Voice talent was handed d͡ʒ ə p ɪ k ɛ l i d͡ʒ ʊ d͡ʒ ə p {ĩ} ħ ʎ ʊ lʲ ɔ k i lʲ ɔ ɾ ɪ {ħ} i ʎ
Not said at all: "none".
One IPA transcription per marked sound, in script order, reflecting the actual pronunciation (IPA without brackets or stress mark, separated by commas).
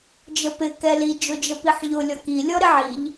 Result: i, ʕ